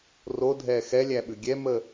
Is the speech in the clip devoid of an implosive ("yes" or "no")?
no